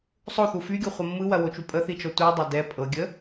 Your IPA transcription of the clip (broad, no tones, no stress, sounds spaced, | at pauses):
sˤ o θ u f y ɡʲ o χʷ ɐ mː ɯ w ɐ w o t͡ʃ u pʼ ə θ i t͡ʃ ɔ tʷ ɯ dˤ ɐ d ɛ pʼ ɤ ɡʲ ə